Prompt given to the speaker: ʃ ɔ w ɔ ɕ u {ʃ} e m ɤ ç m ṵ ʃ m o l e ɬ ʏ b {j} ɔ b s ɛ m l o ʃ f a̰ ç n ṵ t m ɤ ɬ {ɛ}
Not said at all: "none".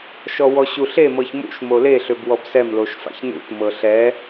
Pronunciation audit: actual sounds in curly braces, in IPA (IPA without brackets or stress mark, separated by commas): ɬ, w, ɛ